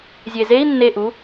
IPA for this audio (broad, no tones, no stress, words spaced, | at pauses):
zʲezei̯ nːeʔu